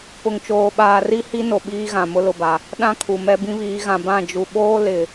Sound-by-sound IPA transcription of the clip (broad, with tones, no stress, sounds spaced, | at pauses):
p ʊ˨ ŋ t͡ʃ oː˨ ɓ aː˨ r i˦ h i˦ n o˨ ɓ iː˦ ɣ ã˨ m ʊ˦ l ʊ˨ b a˨ | ɗ ã˦ kʰ u˨ m ɛ˦ b ĩ˦ β iː˨˦ ɣ ã˨ b ã˦˨ d͡ʒ u˨ ɓ oː˦ l ɪ˨